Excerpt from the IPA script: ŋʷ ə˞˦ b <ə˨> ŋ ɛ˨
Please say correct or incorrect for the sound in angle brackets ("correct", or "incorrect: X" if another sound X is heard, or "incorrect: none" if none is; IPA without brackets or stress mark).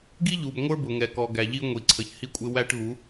incorrect: ʊ˨